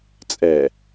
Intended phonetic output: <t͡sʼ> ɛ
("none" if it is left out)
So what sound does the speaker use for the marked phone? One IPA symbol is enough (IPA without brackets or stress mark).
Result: t͡sʼ